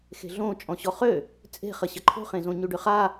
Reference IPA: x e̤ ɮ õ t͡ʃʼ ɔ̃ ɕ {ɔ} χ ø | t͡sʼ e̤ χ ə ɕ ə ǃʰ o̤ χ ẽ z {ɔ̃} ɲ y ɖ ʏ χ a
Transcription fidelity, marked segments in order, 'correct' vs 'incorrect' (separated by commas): correct, incorrect